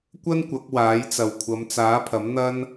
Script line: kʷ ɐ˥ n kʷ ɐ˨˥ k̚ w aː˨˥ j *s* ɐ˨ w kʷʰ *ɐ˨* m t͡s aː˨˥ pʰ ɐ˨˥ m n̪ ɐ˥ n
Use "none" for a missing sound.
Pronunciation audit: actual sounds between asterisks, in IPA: t͡s, ɐ˨˧

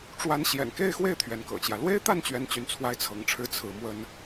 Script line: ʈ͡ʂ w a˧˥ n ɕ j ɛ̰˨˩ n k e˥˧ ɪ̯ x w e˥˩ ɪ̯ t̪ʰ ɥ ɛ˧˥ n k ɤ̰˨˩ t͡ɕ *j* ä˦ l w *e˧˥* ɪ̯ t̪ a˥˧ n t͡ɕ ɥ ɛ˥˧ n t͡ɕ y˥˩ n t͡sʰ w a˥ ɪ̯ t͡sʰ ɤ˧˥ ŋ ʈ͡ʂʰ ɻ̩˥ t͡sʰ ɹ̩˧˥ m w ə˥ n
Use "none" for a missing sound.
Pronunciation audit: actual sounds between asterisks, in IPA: j, e˥

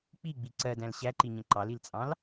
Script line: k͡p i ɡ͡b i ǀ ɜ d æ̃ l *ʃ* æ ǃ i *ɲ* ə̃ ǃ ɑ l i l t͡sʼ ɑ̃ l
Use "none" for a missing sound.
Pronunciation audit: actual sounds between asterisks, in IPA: ɕ, ɲ

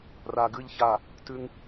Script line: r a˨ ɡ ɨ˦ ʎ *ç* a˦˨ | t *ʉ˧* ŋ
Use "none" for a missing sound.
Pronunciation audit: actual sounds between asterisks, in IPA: ç, ʉ˧

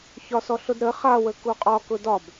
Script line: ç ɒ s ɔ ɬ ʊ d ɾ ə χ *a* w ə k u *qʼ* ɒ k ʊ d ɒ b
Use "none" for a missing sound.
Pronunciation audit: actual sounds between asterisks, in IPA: a, qʼ

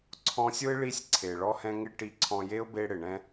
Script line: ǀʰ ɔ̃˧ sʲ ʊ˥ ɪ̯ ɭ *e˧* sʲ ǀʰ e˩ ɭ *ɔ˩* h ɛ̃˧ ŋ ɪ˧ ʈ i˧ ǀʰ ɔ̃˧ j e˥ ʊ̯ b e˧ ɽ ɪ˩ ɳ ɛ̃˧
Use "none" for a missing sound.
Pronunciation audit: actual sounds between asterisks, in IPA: i˧, ɔ˧

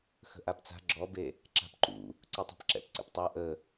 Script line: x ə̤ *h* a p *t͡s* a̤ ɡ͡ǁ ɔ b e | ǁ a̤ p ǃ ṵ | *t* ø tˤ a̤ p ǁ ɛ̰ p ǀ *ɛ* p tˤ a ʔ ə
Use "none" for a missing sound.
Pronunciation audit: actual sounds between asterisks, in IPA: ʔ, t͡s, ǀ, ɛ̰

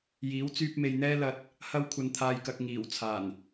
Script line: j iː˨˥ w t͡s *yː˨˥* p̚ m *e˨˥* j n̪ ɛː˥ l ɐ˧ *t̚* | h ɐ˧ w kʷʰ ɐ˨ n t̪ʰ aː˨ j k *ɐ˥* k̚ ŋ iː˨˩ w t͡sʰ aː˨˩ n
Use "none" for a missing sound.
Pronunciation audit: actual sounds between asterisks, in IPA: yː˧, e˨, t̚, ɐ˨

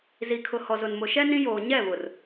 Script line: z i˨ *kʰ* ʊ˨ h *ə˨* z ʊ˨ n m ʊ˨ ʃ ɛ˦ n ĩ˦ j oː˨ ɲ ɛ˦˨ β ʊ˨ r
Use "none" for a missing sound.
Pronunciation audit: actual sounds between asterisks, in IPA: kʰ, ɔ˨

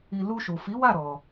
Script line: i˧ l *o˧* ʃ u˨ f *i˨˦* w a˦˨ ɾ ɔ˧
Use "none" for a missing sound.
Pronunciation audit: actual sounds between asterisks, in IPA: u˧, i˨˦

